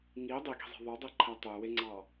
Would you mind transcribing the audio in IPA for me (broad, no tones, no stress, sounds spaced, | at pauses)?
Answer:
ŋ i dˤ i ɡ i̤ zˤ i̤ ðˤ o dˤ e ǃʰ æ tˤ ø w e ŋ͡ǀ ɑ